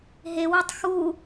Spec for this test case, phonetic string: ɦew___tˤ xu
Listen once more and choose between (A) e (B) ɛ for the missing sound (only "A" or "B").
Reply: A